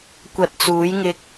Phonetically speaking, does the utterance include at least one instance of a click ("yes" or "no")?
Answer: no